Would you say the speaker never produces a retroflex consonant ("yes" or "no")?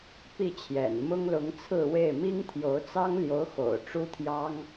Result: no